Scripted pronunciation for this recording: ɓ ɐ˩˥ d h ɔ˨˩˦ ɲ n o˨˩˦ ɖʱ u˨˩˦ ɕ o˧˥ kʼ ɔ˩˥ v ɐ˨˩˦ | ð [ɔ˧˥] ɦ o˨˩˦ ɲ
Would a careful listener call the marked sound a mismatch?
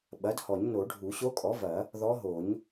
no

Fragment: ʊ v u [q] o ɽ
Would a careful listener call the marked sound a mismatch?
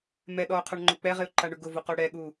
no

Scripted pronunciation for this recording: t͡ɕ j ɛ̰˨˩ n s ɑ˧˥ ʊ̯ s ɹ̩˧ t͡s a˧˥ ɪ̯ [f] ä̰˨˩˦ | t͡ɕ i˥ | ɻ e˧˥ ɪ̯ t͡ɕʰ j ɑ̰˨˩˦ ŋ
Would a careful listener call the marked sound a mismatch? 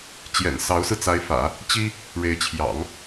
no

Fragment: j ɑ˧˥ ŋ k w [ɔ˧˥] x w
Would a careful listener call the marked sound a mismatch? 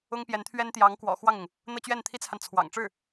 yes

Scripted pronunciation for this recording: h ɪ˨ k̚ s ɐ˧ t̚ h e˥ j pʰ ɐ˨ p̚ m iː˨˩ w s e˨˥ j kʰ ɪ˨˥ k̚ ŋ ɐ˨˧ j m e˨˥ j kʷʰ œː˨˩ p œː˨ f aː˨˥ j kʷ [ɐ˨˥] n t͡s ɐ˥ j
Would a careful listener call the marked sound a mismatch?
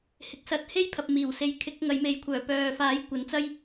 no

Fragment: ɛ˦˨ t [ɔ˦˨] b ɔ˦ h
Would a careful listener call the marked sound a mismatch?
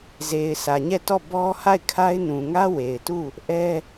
no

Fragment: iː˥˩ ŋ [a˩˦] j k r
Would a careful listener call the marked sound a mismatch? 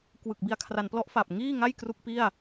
yes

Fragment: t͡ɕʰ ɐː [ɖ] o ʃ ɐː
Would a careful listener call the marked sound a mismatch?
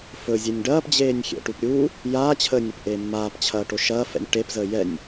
yes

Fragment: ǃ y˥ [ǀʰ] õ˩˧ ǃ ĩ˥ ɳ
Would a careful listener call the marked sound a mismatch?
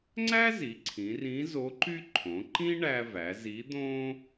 yes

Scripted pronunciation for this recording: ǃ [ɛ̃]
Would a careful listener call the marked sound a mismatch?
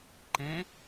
no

